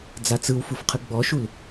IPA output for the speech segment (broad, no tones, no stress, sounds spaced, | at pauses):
d͡z a t͡s ɯ w f u f qʰ ɯ ɡ͡b ɔ ʃ u l